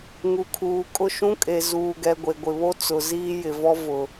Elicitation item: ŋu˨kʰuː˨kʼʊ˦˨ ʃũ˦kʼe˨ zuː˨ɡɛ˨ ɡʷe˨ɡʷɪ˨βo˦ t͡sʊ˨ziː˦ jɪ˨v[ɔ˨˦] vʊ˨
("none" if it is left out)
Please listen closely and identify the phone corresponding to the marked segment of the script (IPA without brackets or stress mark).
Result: ɔ˦